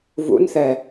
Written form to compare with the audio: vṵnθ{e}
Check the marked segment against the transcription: incorrect: ɛ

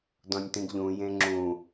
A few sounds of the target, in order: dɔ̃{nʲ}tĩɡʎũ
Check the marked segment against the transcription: correct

